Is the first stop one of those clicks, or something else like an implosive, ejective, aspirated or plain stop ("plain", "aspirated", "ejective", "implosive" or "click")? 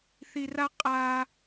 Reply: ejective